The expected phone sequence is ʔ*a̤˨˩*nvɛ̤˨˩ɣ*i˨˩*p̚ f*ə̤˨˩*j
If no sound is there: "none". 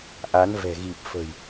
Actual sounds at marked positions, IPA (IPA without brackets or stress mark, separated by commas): a˨˦, i˨˩, ə̤˨˩